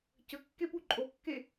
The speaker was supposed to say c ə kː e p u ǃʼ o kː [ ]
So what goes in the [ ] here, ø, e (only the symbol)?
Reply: e